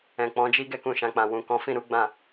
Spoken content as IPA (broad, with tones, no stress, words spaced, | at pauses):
ɛ̃˨k͡pɔ̃˨˦d͡ʒi˦ ɡɛ˦kũ˦˨ʃã˧k͡pã˧ wũ˨kɔ̃˨˦ fĩ˦˨ɾu˨˦ ɡ͡bã˦˨